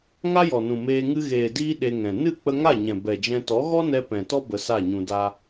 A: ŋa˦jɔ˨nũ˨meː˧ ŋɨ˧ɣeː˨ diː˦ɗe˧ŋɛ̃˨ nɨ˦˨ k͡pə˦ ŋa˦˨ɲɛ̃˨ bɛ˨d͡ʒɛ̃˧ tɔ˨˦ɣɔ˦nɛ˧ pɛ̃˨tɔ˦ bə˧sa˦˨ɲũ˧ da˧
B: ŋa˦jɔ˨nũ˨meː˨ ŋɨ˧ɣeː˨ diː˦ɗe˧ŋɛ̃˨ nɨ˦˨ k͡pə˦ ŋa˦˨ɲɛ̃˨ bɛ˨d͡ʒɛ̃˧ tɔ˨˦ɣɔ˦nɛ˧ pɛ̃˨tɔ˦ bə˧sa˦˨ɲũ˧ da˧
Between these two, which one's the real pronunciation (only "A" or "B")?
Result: A